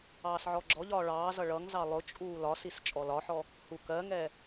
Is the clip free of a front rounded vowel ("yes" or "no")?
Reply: yes